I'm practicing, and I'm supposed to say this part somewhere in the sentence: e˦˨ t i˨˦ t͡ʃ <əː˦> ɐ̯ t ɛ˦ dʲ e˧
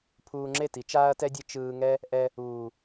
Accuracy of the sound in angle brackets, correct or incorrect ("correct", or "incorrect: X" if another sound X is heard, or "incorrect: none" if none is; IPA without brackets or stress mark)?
incorrect: aː˦